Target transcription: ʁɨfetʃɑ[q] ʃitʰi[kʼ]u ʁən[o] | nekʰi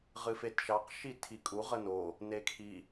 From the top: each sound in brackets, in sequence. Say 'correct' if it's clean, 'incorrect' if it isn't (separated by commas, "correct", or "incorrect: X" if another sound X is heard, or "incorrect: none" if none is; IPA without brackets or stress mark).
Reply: correct, correct, correct